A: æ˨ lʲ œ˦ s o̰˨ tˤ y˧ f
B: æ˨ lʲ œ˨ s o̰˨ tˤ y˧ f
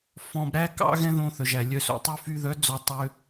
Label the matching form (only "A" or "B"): B